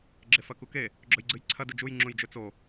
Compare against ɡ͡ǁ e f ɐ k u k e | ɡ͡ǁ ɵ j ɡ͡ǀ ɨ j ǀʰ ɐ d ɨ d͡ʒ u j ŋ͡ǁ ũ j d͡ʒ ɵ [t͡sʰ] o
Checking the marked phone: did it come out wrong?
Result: yes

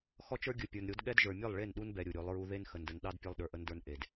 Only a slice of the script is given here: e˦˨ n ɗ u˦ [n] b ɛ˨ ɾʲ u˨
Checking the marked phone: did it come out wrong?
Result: no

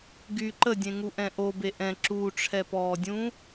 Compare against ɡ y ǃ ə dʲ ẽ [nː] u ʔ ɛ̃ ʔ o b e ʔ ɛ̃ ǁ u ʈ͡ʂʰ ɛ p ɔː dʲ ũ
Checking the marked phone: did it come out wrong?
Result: yes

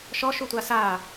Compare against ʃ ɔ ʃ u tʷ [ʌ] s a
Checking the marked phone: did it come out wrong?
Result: yes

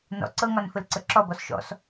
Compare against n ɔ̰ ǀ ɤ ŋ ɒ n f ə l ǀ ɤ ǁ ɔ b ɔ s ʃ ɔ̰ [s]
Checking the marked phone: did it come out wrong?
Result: no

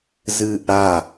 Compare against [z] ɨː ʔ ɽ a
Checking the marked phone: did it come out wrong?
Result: no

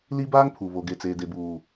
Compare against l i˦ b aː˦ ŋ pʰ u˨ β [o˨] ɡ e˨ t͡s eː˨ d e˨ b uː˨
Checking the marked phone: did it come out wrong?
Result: no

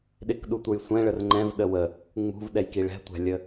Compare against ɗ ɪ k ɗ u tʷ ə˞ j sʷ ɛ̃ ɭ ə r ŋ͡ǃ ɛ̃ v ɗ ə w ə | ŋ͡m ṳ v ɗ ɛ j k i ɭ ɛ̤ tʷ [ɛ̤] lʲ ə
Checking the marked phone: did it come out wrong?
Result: yes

